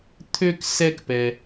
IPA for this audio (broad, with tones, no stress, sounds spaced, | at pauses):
t̪ʰ ø˥ k s ɛ˥ k p ɛ˧